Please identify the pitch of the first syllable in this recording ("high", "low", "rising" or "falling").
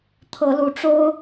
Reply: rising